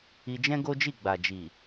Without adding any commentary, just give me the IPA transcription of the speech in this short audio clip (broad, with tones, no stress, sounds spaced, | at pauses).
i˧ d͡ʒ ɛ̃˦ ɡ o˦ d͡ʒ i˦˨ ɡ͡b a˨ d͡ʒ i˨